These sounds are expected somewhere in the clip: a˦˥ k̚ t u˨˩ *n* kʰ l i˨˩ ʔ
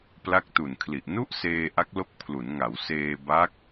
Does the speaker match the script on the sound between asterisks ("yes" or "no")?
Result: yes